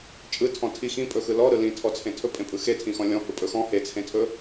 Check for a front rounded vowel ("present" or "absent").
absent